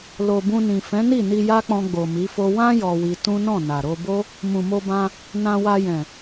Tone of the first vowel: low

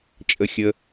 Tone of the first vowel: high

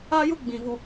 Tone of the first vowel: high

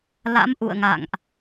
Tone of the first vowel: rising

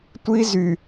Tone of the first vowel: high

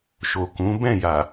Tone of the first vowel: low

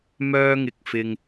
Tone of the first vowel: high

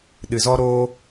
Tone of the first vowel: low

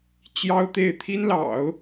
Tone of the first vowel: high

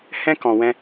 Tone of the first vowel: high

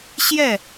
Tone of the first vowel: falling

